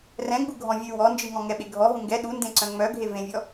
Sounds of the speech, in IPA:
r ɛ̃ ɡ͡b u ɡʱ ɔ̃ vʲ ʉ w ɔ n d͡ʒ ɨ ŋ ɔ̃ ŋ ɛ ɓ e ɡʱ ɔ ɦ ũ ŋ ɡ ɛ ɗ u n d ẽ ǀ œ̃ ŋ͡m œ ɡʱ e v ẽ vʲ ɔ

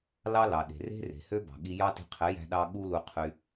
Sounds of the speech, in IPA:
l ɑ˦ l ɑ˨ ɗ e̤˨ r e̤˦ r e̤˨ h ø˦ b ɑ̤˨ ɠ i˧ j ɑ˦ t i̤˧ qʰ e˨˦ j æ̤˧ ɗ ɑ˧ ɠ u˦ l u˧ qʰ y˧

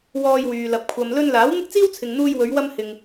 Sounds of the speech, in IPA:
w ɔː˧ j w yː˨ l ɐ˨˥ p̚ kʷʰ ɐ˨ m l ɵ˧ n l aː˨˥ w n̪ ɪ˥ k̚ t͡s iː˥ w t͡sʰ ɪ˨ ŋ n̪ uː˧ j w ɵ˨˧ ɥ w ɐ˧ m h ɪ˨ ŋ

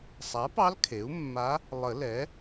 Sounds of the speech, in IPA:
sˤ a˩˥ p ɑ˧˥ l kʰ e˩˥ u̯ mː a˧˥ | lˠ ə˨˩˦ l ɛ˩˥

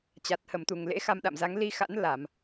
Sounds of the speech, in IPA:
t͡ɕ a˨˩ t̚ h ə˧˩ m t̪ u˧˩ ŋ l ḛ˧˥ x a˧ m ɗ a̰˧˨ m z a˨˦ ŋ l i˧ x a̰˧˥ n l a˧˩˨ m

